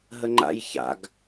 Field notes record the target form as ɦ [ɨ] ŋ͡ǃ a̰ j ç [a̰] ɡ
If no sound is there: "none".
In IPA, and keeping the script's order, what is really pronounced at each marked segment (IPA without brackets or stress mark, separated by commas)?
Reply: ə, a̰